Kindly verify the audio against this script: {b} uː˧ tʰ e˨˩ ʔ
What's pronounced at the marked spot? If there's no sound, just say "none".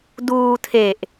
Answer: d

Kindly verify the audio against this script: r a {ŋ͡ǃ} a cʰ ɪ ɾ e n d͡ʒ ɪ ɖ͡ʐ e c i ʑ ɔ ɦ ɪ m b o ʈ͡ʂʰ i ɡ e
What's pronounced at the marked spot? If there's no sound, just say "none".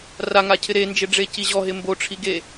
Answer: ŋ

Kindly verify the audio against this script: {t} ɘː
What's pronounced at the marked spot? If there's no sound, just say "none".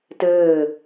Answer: t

